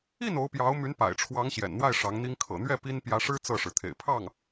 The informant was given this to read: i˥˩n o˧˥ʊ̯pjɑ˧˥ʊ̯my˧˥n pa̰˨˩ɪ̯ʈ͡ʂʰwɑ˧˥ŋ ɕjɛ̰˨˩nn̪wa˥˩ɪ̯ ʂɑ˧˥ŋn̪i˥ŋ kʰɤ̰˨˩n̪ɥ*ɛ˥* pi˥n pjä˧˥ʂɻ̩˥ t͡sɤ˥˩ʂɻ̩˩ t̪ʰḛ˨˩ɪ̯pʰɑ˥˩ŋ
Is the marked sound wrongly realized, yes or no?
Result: yes